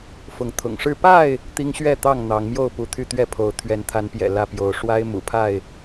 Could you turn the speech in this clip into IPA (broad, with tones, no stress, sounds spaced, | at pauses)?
f ʊ˨˦ ŋ t̪ʰ ʊ̰˨˩ ŋ ʂ ɻ̩˥˨ p a˥˨ ɪ̯ | t̪ i˦ ŋ ɕ ɥ ɛ˥˨ t̪ ɑ˥˨ ŋ n̪ ɑ˨˦ ŋ m j o˥˨ ʊ̯ p u˨˦ t̪ʰ y˥˨ t̪ ɥ ɛ˥˨ pʰ o˨˦ ʊ̯ t̪ʰ ɥ ɛ˨˦ n t̪ʰ a˨˦ n p j ɛ̰˨˩ l ä˥˨ p j o˨˦ ʊ̯ ʂ w a˦ ɪ̯ m ṵ˨˩ pʰ a˥˨ ɪ̯